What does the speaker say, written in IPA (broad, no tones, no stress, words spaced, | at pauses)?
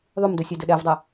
ðˤʉmdɵsʲœdɘ ɗɛvdˤɛ